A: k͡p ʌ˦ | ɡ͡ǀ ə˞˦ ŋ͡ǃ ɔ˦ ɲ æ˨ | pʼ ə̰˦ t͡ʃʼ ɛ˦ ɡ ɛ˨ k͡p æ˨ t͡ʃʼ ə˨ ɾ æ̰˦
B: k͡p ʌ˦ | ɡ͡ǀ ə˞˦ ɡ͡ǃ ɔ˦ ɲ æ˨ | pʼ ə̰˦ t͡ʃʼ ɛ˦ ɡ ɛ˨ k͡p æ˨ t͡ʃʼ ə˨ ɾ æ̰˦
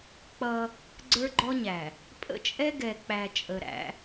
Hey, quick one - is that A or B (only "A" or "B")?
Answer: B